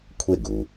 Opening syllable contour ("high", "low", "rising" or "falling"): falling